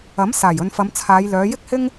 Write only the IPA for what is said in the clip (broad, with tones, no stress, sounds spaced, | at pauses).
ɐ˨˥ m s aː˨˩ j ɵ˨ n f ɐ˨˧ m t͡sʰ aː˨˧ j l œː˨˧ j ɪ˥ k̚ h ɪ˥ ŋ